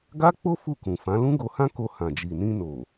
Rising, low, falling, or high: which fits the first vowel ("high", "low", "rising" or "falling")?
high